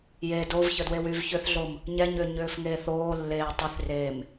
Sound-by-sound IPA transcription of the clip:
j e d o v ç ə d w e w y v ç ʏ θ ɮ o m | ɲ ɛ ɲ ʏː ɲ ʏː f ŋ eː θ oː lː eː tˤ y θ r eː m

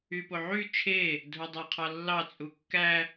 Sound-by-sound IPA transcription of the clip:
y p o ʕ y t͡ʃʰ e | dʱ o dˤ æ qʰ ɑ lː ɑ t͡sʼ u kː æ

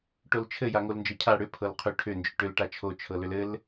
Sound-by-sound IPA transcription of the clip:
ʈ o l t͡ʃʰ ɘ j a ŋ o l n d͡ʒ ɤ cʰ a ɽ ʏ pʰ ɤ l qʰ ʏ ʈʰ ʏ n d͡ʒ ʏ ʈ ʏ l ʈ a t͡ʃʰ o t͡ʃʰ ɤ l ʏ l ɘ l

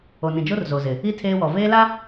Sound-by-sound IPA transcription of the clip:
o˨ n ĩ˨ d͡ʒ o˦ r z o˨ z ɪ˨ | i˦ tʰ eː˦ w ɔ˨ v eː˦ l a˦

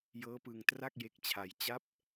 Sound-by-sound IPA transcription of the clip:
j ɤː˦˥ p ɯ˧ ŋ t r a˥˩ k̚ j e˦˥ k̚ t͡ɕʰ a˧ j t͡ɕ a˦˥ p̚

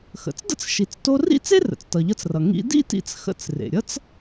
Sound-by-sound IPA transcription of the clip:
x ə̰˩ t͡s d ə̰˥ t͡s ʃ i˩ t͡s t o˧ r ḭ˥ t͡s e˥ r ə̰˩ t͡s t ʌ˩ ʎ ʌ˧ t͡s r ʌ˩ ŋ ḭ˧ d ḭ˥ t ḭ˧ t͡s x ə̰˧ t͡s r ḛ˩ ɾʲ ʌ˥ t͡s

